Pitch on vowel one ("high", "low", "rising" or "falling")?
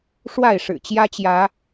falling